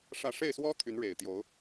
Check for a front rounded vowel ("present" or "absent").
present